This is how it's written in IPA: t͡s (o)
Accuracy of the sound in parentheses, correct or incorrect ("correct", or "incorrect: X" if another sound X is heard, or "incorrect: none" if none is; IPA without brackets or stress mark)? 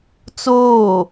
incorrect: oː